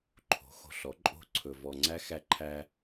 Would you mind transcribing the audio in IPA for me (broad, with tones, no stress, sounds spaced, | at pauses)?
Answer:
ǃʰ o̤˨˦ x o̤˨ ɬ ɔ˨˦ ǃʼ o̤˦ ǀʰ ɵ˧ v ɔ˧ ŋ͡ǀ æ˦ x æ˧ ǃʰ æ˧